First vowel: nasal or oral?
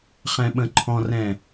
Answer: nasal